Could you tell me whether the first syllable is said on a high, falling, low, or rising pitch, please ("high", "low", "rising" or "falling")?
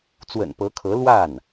low